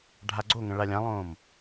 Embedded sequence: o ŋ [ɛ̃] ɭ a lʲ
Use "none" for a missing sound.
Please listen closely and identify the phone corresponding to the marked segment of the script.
ə̃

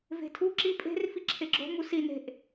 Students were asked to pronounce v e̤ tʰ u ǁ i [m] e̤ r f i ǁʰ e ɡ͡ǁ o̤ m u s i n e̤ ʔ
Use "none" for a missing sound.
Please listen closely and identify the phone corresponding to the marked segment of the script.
pʼ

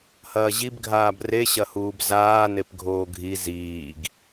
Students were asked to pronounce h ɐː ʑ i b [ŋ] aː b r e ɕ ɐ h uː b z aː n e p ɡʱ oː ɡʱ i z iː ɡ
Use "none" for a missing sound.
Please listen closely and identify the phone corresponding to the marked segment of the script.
ɡʱ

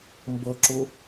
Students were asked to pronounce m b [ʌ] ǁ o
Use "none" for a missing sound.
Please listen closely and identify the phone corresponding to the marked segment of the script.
ʌ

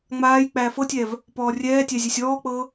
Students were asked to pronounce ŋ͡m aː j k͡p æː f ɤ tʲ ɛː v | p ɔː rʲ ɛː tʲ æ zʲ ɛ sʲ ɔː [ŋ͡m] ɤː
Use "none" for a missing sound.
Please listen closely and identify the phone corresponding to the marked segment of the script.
k͡p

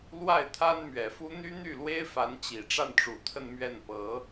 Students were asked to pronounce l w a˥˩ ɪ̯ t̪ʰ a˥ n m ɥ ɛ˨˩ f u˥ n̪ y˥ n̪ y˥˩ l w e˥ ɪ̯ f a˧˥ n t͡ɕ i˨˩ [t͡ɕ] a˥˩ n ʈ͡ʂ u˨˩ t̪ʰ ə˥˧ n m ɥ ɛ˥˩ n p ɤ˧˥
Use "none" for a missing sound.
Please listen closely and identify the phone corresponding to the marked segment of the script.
ʈ͡ʂ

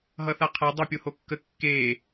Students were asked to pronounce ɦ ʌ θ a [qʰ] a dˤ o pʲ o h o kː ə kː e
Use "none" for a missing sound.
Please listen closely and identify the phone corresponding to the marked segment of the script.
qʰ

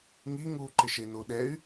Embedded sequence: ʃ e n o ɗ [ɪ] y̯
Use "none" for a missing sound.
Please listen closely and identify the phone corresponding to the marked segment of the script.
ɛ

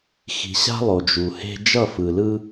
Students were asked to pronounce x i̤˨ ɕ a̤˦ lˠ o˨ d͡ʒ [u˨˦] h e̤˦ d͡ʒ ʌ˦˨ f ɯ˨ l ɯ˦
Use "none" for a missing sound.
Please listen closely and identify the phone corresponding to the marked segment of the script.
u˨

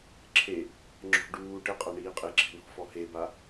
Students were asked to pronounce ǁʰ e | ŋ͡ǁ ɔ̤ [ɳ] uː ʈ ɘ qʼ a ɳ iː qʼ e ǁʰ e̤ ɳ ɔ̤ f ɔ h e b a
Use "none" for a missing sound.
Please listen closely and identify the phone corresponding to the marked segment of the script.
ɖ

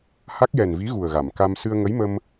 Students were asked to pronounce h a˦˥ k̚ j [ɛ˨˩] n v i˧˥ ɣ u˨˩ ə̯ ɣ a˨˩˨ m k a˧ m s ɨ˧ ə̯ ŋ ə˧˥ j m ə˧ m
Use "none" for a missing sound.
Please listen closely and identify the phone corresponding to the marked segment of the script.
ɛ˨˩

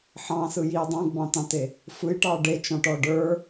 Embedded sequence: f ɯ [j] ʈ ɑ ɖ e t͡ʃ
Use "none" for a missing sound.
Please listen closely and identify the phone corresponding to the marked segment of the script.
j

